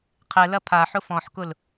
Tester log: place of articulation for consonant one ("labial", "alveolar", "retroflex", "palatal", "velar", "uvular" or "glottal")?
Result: uvular